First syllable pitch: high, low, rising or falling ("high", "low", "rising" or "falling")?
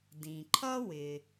low